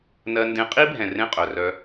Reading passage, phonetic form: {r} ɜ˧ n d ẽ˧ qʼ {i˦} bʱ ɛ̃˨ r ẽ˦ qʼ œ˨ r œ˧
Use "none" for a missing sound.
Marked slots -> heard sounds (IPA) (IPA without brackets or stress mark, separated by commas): n, i˦